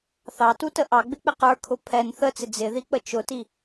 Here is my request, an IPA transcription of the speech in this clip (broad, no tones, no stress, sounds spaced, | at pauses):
θ ɑ t u t ə ʔ ɑ ɡ͡b ɪ k͡p ɪ q ə˞ kʰ ʊ pʰ ɛ n θ ə t͡s ɪ d͡z ɪ ð i k͡p ə t͡ʃ ʊ t i